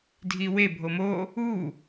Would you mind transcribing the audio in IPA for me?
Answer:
dʱ i w e bʱ o m o | u

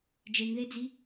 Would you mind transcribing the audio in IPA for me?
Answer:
d͡ʒ e ŋ ð e d͡z i

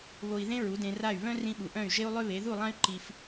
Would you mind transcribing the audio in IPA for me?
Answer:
β o˧ i̯ ð ẽ˦ ɹ u˨˦ d ẽ˧ r a˦˨ y̯ β œ̃˦ r ĩ˧ ɓ u˨ ʔ œ̃˦˨ y̯ ʒ e˦ u̯ lˠ ø˦ β e˨˦ ð u˦˨ lˠ ã˦ y̯ ǃ i˧ f

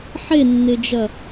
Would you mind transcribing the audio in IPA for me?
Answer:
ħ e nː ɪ d͡ʒ ɐ

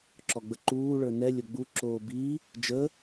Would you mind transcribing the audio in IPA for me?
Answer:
ǁ ɔ ɡ͡b ə ǃ uː ɭ ə˞ n ɛ lʲ o ɡ͡b u ǁ oː b i | d͡ʒ ə

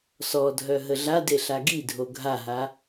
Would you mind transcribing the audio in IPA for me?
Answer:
s ɔ dʱ œ ɦ ə ɮ a d e ɬ a ɡ i dʱ o ɡʱ a ɦ a

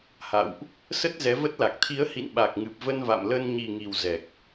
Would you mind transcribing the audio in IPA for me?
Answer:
h a̰˧˨ w ʔ | s ə˦˥ t̚ z ɛ˨˦ v ə˦˥ t̚ l a˨˩ k̚ t̪ʰ i˨˦ ə̯ h ḭ˧˨ n ɓ a˨˩ k̚ ŋ ɨ˨˩ p̚ v ə˧ n v a̰˧˨ m l ə˧ n ɲ i˨˩ ŋ i˨˩ w z ɛ˨˩ k̚

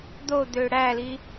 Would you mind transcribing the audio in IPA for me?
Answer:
d̪ o d̪ ø ɽ æ l i

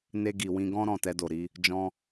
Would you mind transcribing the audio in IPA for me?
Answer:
n e˧ ɡ i˨ w ĩ˧ ɡ ɔ̃˦ ɾ ɔ̃˦˨ t ɛ˧ d o˨ ɾ i˧ | d͡ʒ ɔ̃˧

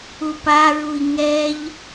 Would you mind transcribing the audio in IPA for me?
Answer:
u p a ɹ u i̯ ŋ ɛ ʎ

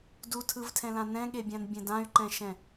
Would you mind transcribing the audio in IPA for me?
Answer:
d u tʰ ɯ v tʰ ɛ̃ l ã n ɛ̃ ɠ e bʲ ã n bʲ ɛ̃ d ã y̯ ǃ ɛ̃ ʃ ɛ̃

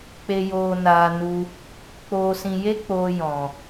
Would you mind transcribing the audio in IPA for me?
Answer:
k͡p e˧ j oː˧ n aː˧ n u˧ | k͡p oː˧ s ĩ˧ j e˦ k͡p oː˧ j ɔ̃˨

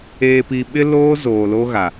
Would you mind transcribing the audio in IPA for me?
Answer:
eː˨ p i˨ ɓ ɪ˦ l oː˦ z oː˨ l o˦ ɣ a˨

